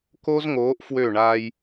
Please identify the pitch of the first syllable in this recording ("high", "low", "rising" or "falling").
high